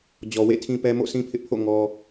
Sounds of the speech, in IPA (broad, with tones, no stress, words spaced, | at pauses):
d͡ʑɔ˨wḛ˦˨tʰĩ˦pɛ˦ mo̰˦˨sĩ˦pʰɪ˦ʔpʰo̰˦˨ ŋɔ˦